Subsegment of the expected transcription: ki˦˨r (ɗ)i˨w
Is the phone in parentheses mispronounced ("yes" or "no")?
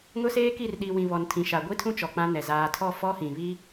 no